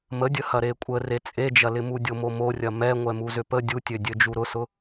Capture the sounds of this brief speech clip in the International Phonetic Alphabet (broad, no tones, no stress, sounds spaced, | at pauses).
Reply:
m ə dʲ ə h ɐ ɾ e kʷʼ ə r e t͡sʼ e d͡ʒ ɐ l ɪ m u dʲ o m o m o rʲ ɐ m ɛ ŋʷ ɛ m u z ʏ p ə dʲ u tʲ ø dʲ ø d͡ʒ u ɾ ʊ s ʊ